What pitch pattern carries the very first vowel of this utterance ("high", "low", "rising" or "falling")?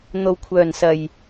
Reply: low